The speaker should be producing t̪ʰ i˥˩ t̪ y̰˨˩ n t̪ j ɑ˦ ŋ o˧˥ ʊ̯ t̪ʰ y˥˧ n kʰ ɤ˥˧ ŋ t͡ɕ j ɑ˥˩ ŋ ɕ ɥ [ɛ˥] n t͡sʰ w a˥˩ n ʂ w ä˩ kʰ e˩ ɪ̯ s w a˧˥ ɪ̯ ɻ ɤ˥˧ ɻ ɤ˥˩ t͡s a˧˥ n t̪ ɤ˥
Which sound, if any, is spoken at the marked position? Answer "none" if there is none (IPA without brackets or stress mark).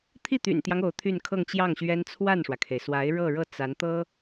ɛ˥